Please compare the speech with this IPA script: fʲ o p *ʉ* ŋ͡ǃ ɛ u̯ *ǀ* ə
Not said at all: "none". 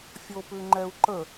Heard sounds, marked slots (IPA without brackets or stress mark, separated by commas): ʉ, ǃ